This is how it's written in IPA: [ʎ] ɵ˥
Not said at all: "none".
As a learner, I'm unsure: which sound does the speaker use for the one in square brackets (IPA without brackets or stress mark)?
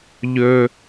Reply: ʎ